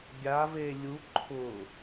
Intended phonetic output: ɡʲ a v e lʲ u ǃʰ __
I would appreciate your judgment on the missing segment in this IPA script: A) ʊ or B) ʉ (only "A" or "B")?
A